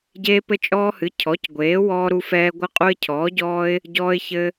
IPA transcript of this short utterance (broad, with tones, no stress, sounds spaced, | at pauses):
ɟ eː˦ p ɘ˦ t͡ʃʼ ɔː˦ h ɨ˩˥ cʰ ɔ˩˥ c ɡʷ eː˩˥ w ɔː˦ ɾ u˦ f ɛː˦ ɡʷ ɨ˦ qʼ u˦ ɪ̯ cʰ ɔː˩˥ ɟ ɔː˦ ɪ̯ | ɟ ɔː˦ ɪ̯ ç ɘ˦